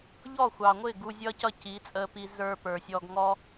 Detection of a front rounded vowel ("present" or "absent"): absent